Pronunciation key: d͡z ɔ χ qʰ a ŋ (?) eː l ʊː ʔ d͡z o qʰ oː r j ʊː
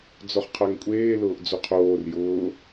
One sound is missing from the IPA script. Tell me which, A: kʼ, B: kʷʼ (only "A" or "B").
B